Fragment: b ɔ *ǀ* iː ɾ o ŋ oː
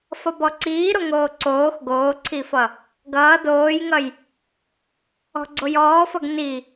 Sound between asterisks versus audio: correct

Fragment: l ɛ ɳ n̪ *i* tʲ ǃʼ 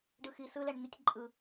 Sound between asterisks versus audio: correct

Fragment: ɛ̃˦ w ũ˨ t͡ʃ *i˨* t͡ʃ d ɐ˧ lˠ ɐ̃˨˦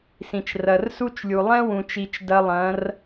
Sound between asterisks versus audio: correct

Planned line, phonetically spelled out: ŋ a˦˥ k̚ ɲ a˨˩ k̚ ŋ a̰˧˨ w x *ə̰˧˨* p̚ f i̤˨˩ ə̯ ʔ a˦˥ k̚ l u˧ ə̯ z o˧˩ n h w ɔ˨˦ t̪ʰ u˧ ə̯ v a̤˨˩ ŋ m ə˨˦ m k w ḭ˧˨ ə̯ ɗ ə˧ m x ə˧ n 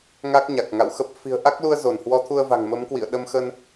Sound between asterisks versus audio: incorrect: ə˦˥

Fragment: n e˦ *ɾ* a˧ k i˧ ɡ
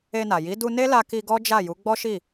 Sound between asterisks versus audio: incorrect: l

